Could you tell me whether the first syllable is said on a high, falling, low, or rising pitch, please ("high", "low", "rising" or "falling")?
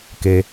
low